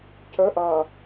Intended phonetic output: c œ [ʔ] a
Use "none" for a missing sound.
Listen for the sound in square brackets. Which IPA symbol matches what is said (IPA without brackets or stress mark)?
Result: ʔ